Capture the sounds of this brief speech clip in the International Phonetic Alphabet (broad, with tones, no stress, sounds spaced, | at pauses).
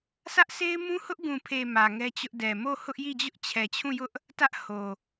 s ä˦ ʔ s e˦ ɪ̯ m ũ˦ h ʊ˦ ʔ ɡ ũ˨ pʰ e˨ m ä˨ ŋ ɛ˦ t͡ɕ ʊ˦ ʔ d ɛ˨ m o˦˨ h ʊ˦ ʔ j i˦˨ d͡ʑ ʊ˦ ʔ t͡ɕʰ ɛ˨ t͡ɕʰ ũ˦˨ j ʊ˦ ʔ | t ä˦ ʔ h o˨